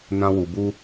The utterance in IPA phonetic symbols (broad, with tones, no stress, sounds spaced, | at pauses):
n ã˧ w u˨ b u˧